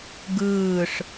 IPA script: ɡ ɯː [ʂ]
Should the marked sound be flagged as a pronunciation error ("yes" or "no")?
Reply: no